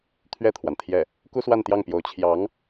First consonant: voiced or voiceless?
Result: voiceless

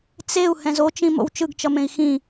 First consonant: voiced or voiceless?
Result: voiceless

